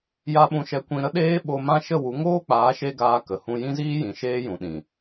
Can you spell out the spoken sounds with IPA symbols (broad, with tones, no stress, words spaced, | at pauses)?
ja˦ɓũ˧ʃɛ˧ kʷĩ˧ ɾə˦ɗeː˦ ɓo˧mã˦ ʃə˦˨wu˨˦ ŋoː˦k͡paː˨˦ʃe˧ ɡaː˧kə˨hũ˧ jĩ˦ziː˦jĩ˨ ʃeː˦jũ˨ɗĩ˨